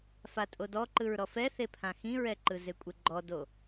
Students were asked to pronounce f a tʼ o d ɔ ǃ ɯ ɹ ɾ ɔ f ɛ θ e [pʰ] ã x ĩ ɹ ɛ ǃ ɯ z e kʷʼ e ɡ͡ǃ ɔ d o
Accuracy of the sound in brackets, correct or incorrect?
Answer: correct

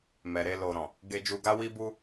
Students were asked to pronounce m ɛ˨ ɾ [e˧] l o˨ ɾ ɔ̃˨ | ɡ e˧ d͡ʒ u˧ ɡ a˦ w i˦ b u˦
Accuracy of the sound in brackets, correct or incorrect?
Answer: correct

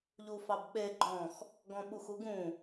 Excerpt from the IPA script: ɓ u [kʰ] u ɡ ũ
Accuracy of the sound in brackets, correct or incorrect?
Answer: incorrect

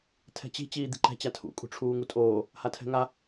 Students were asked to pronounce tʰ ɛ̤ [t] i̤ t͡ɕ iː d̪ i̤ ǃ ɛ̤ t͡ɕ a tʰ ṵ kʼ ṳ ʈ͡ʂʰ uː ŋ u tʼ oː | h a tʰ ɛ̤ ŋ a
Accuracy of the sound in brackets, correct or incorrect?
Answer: incorrect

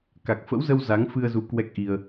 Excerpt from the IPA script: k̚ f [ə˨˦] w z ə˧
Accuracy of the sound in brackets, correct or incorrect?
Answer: incorrect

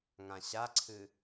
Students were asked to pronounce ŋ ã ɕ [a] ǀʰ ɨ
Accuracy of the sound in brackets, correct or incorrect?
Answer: correct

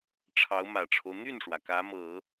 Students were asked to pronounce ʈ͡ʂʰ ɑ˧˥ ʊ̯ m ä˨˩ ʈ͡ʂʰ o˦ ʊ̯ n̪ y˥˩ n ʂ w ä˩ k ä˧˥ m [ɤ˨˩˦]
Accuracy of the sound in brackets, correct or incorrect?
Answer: correct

